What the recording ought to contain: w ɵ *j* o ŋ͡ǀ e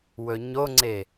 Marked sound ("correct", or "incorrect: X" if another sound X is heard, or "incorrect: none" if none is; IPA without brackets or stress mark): incorrect: ɲ